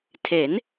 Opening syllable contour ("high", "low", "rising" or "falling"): rising